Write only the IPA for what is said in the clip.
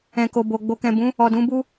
ɛ̃˨ko˨ bo˨ ɡ͡bo˨kɛ̃˨ bũ˨˦ | ɔ˨dũ˨˦bu˦

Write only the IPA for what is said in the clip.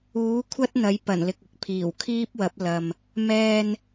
uː˨˥kʷʰɐ˥t̚ n̪ɐ˨˥jpɐ˨˩nlɪ˨k̚ɪ˧k̚ pʰiː˨˩wkʰiː˥p̚wɐ˨˥p̚ lɐ˨m | mɛː˧n

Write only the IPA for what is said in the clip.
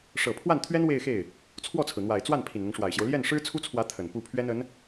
ʂɤ˨˩ pʰwa˥˩nt̪ʰɥɛ˥n we˥˧ɪ̯xe˥˩ɪ̯ | t͡sʰwɔ˥˩t͡sʰɹ̩˩n̪wa˨˩ɪ̯ t͡swa˥˩n pʰi˨˩nn̪ɤ˦ŋʂwa˨˩ɪ̯ɕjo˦ʊ̯ ljɛ˥˩nʂɻ̩˥t͡sʰu˥t͡sʰwä˧˥ t̪ʰə˨˩npu˥˩ pʰɥɛ˥nə˧˥n

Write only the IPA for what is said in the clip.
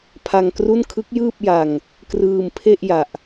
pʰa˧ŋkru˥˩n kʰɯ˦˥k̚jɯː˥˩p̚ ja˧ŋ | krɯː˧mpʰe˥˩ʔ ja˨˩ʔ

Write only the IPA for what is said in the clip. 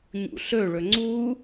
ɲṵɬɵɭɵ ŋ͡ǀu

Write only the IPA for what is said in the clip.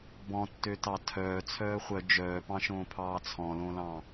bɔ̃tːøtɑ tʰœː t͡sʰœːχʷœ d͡ʒœːpɑ̃ʃõːpʰɑː t͡sʰɔ̃lõlɑ̃

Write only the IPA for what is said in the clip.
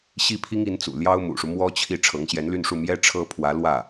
ɕi˥pʰi˥ŋ i˧˥nt͡sṵ˨˩ ljɑ˥ʊ̯mṵ˨˩ʂu˦ mwɔ˥t͡ɕʰi˥˩ ʈ͡ʂʰɤ˧˥ŋɕjɛ˧˥nly˥˧nʂu˥˩ mjɛ˥ ʈ͡ʂʰɤ˥ pʰwä˧˥ lwä˥˩

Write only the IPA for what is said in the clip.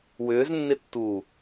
wʏːznːɪtːuː

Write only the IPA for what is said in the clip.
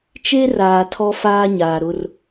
t͡ʃe˦raː˨ tʰɔ˦ faː˦ ɲaː˨ɾʊ˦r

